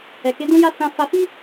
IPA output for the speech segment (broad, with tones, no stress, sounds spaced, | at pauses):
ɛ˨ k e˨˦ d ũ˦ j a˦ s ã˧ f a˧ f i˦